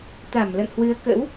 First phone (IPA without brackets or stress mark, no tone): t̪